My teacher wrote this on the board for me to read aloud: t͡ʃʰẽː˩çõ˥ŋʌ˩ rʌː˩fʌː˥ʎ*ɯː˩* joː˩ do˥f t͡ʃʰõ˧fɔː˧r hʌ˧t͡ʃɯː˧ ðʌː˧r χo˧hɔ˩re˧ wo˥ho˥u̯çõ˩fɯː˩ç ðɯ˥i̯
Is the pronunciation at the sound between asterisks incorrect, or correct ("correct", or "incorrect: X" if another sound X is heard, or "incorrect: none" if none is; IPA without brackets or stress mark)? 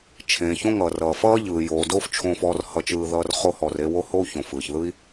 correct